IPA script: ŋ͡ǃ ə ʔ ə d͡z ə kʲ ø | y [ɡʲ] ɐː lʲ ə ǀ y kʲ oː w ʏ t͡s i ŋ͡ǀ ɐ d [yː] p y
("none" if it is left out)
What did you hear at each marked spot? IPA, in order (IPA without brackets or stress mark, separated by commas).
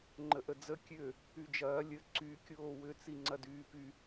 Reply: d͡ʒ, yː